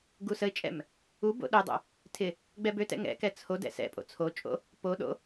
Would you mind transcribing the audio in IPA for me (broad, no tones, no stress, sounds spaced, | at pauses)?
ɡ u s ə ɪ̯ t͡ʃʼ ɛ̰ m | u b o̰ ɗ ø dˤ o̰ | tʰ ɪ | ɡ͡b ɛ b ø t ɛ̰ ŋ ɛ̰ k ɛ t͡sʰ o d ɛ̰ s ɛ̰ pʼ o̰ t͡sʰ o t͡ʃʼ o̰ | p o ɗ o̰